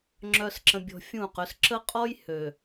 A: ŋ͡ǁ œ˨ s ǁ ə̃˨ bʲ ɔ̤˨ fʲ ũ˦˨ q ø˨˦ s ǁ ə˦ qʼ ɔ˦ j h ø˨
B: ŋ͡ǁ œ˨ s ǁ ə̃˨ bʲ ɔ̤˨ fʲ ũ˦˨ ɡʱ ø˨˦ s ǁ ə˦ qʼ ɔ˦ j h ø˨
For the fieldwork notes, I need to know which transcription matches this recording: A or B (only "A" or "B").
A